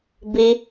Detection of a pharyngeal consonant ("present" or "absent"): absent